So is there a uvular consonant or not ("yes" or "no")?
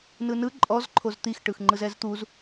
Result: no